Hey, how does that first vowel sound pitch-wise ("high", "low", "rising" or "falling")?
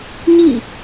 falling